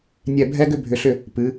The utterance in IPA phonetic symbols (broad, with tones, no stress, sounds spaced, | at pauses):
nʲ ɛ˦˨ bʱ ɛ˥ ɡ ʏ˥ bʱ ʏ˨˥ ɬ ʏ˦˨ | p ɨ˩˧